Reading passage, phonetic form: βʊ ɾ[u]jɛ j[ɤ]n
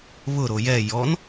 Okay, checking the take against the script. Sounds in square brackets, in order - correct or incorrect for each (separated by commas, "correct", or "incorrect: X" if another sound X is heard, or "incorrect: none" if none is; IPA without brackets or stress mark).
incorrect: o, incorrect: ɔ